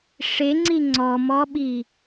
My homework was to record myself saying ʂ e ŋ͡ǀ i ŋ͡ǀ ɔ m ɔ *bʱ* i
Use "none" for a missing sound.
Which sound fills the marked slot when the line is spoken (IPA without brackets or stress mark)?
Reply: ɓ